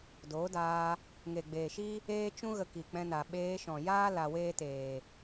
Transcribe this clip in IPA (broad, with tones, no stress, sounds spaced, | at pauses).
d oː˨˦ d aː˧ | ŋ e˨ ɡ͡b eː˨ ʃ i˦ | eː˦ t͡ʃ ũ˦ ɣ ə˧ k i˨ k͡p ɛ̃˧ n a˨ ɓ eː˧ ʃ ɔ̃˨ j aː˦ l a˧ w eː˦ t eː˨